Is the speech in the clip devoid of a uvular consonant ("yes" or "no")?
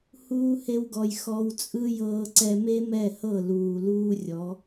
yes